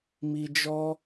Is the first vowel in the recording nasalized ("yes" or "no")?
no